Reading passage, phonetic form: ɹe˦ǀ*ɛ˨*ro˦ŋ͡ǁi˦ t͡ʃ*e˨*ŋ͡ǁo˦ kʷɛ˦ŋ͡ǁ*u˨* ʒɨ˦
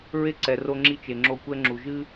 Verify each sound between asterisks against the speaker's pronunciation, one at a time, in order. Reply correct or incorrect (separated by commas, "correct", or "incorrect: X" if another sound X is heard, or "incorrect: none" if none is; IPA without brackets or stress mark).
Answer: correct, correct, correct